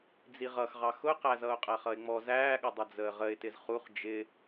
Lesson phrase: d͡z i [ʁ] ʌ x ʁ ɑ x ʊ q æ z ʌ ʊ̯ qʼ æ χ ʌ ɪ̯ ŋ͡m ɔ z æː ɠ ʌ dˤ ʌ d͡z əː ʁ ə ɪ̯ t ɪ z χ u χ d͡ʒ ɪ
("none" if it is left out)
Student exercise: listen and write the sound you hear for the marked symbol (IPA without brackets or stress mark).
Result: ʁ